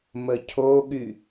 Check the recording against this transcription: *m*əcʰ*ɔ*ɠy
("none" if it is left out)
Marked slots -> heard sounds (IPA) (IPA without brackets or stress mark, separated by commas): m, o